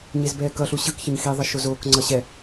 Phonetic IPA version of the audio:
ɲezbɛːkʌɬu ɕɯkçʌɲ xiðˤʌ ʃozoːkŋ͡ǀʌ ɕɛ

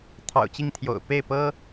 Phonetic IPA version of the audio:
t̪ʰɑ̰˨˩ʊ̯t͡ɕi˥˩ŋ t̪ʰjo̰˨˩ʊ̯ pe˥˩ɪ̯pɤ˥

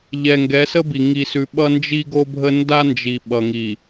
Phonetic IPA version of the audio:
ʎɛ˨ŋɡɛ˨˦sə˦bi˨ ŋi˨sʉ˨ ɓʌ˦nd͡ʒi˦ɡo˦bʱə˦ nda˦nd͡ʒi˨ɓʌ˨ŋi˨

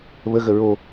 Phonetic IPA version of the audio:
βəɣə ɹo

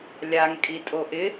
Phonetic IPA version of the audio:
lʲaŋ kʼitʼoʔɪ

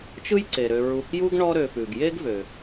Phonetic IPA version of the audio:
t͡ʃɯ˦jǀe˩ɾø˨ ɹu˨kju˦ɡ ɳɔ˦ɾø˨fʉ˩ɡ je˥ɡvø˨

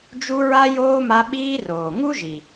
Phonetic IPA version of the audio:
d͡ʒu˦ɹa˥ joː˥ma˦ ɓiː˦roː˩ŋu˥ʒi˩

